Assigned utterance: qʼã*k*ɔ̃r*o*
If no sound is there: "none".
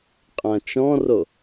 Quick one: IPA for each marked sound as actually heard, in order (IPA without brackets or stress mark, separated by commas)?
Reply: t͡ʃ, o